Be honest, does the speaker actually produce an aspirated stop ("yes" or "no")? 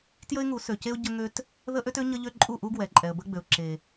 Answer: no